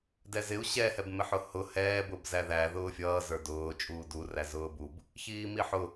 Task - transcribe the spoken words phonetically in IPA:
dɛzɪu̯ ɕɛ hɛbmɪħʊhʊ hɛːb ʊbzæðæ ðʊːfʲʌː zə˞dʊː t͡ʃʼuːdu ræzʊːbub | çiːmiħʊ

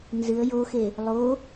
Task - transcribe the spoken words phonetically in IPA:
nzɨə̯ joxe | lˠo

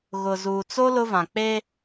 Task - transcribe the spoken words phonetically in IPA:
ɣʊ˨zuː˨ t͡so˦ lʊ˦vã˨k͡pe˦

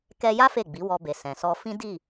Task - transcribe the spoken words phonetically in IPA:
kɛ˧ja˦ fe˦˨ɡ͡bi˨˦wɔ˧ be˨sɛ̃˨sɔ˧ fĩ˦ di˦˨

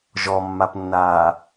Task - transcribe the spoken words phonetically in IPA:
ʒɔmːapnːaː

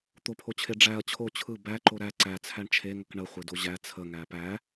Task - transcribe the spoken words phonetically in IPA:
t̪opʰot͡ɕʰe ɖ͡ʐæɐ̯ t͡ɕʰo t͡ɕʰɯ bæǃo ɾæ ǀæt͡sʰæɳ t͡ʃʰeŋək ɳəχʷedo ʑæ t͡sʰəŋæ pæ

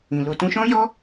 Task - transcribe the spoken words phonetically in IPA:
ĩ˨ lo˧ tũ˧ʃɔ̃˦jɔ˦

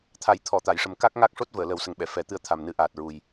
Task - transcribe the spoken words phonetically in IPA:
t̪ʰa˨˩˦jt̪ʰɔ˨˩˨t̪a˨˩˨jʂə˨˩m ka˦˥k̚ŋa˦˥k̚ʂo˦˥t̚ vəː˨˩˨lə˨˩˦wsə˨˩ŋɓɛ˨˩˨ fɛ˨˩˦t̪ɨ˧ə̯ t̪ʰa˨˩mnɨ˨˩˦ʔaː˨˩t̚ɹu˨˩j

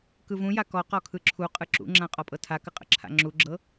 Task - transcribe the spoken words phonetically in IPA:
kɯvũja kɔqɔ kʰɯǁʰuqʼɯ ǁṵŋ͡ǁã qʼɔpʼɤtʰakə qʼə̰ǁʰa̰ŋ͡ǁuɡ͡ǁɤ

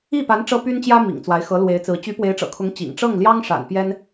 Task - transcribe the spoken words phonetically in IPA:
i˥˩pa˧˥n ʈ͡ʂɤ˥py˥nt͡ɕjä˥ mḭ˨˩ŋt͡swa˧˥ɪ̯ xɤ˧˥lwe˧˥ɪ̯t͡sɹ̩˧˥ t͡ɕy˧˥pwe˧˥ɪ̯ ʈ͡ʂɤ̰˨˩kʰʊ˧˥ŋ t͡ɕḭ˨˩ŋ ʈ͡ʂɤ˥˩ŋ ljɑ˥ŋʂa̰˨˩n pjɛ˥n

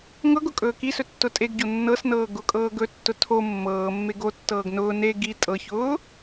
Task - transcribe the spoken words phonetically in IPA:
ŋɤɡʊ kʼɵːkisɵ tːʊtʼeɡɟo nːɤsnɤː ɡʊkʼɤː ɡɵtːʊ tʰo mːɤːmːe ɡotːɤːɡ nʊː ne ɡi tʼɤçʊː

